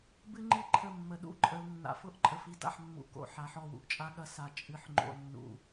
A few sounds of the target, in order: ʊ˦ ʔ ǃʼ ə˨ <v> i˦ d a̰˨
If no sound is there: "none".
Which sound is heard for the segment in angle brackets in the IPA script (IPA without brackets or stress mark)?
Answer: f